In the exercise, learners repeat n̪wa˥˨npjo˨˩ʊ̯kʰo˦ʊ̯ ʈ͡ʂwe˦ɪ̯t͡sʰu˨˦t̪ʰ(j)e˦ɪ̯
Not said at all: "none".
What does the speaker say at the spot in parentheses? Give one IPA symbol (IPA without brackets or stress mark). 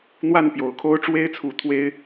w